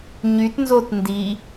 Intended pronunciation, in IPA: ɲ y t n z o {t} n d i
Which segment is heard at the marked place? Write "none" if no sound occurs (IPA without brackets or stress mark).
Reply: t